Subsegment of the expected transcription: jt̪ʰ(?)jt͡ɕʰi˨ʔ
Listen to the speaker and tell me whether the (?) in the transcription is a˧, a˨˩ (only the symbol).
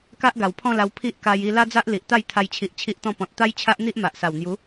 a˧